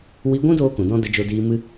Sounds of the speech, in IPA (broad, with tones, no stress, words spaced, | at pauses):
wi˧ɡʷũ˦ doː˦kũ˨dɔ̃˦ də˧d͡ʒo˧diː˧mɨ˦